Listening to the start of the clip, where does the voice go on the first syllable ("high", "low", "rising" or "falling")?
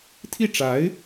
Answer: falling